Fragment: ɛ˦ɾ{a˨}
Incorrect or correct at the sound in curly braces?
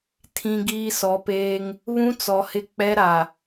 correct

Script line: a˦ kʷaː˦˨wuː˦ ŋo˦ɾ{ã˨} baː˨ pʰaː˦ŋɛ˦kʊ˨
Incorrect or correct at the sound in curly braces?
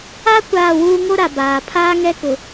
incorrect: a˨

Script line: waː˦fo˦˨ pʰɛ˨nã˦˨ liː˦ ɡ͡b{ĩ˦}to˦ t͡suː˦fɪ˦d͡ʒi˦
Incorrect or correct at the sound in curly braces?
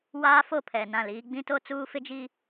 correct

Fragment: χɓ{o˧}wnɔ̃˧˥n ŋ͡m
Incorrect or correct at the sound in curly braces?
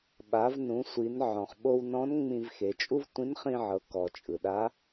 correct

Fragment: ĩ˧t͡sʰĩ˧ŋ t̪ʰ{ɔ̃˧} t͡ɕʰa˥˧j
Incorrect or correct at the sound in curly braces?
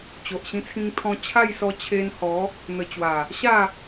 correct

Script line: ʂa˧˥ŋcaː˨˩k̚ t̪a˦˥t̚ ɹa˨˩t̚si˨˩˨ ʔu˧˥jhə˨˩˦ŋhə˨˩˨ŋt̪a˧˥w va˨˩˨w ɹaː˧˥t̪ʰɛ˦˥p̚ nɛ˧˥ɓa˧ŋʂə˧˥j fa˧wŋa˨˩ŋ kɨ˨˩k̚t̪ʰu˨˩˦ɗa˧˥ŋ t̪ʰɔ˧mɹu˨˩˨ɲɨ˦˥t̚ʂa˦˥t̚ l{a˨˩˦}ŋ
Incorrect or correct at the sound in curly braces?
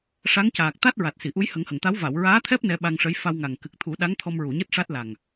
incorrect: a˨˩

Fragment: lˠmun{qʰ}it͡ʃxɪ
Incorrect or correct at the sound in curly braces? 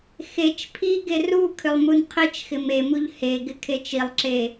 correct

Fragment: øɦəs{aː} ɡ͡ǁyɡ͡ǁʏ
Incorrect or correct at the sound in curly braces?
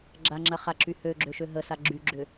incorrect: a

